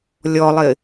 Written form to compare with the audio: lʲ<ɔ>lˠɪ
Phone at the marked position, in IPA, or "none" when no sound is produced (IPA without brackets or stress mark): ɔ